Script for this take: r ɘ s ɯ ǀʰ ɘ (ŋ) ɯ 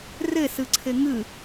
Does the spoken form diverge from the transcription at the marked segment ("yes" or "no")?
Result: no